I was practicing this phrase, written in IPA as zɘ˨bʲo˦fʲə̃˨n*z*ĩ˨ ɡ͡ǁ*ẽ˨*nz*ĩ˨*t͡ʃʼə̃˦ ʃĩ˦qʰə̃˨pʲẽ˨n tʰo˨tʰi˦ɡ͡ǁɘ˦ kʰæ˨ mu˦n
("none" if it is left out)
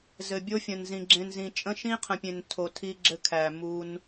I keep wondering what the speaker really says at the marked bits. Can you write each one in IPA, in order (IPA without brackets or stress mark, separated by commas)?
z, ẽ˨, ĩ˨